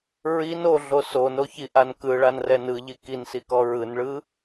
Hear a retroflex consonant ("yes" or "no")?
yes